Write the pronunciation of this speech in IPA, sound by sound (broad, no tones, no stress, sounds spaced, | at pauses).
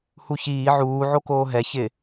h u ç iː ʕ uː ʕ o k oː ɦ ɛ ç ɪ